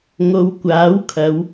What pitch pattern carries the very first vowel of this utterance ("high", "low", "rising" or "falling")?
low